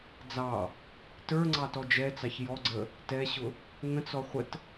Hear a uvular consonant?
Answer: yes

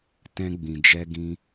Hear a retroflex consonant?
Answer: no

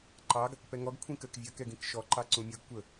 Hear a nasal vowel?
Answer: yes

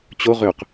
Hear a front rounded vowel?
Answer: yes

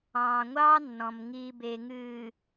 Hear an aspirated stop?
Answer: no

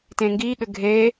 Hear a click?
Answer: no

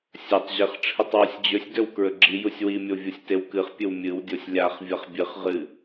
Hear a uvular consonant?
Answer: yes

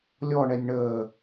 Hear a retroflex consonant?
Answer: yes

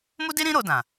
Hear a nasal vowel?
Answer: yes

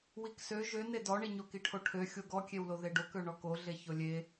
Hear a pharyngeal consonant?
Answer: no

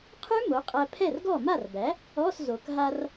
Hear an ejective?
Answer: yes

